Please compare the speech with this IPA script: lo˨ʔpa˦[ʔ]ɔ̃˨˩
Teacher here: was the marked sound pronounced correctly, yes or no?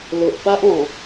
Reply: yes